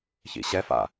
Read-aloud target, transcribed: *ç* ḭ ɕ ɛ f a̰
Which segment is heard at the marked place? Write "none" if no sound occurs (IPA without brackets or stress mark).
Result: ç